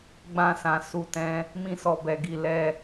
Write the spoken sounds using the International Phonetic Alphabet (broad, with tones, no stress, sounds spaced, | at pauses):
ɡ͡b ã˧ s ã˨ s u˧ t ɛ̃˧ | m ĩ˧ s ɔ˨ b ɛ˨ ɡ i˨ l ɛ˧